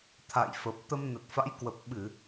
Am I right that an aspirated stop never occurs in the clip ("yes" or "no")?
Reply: no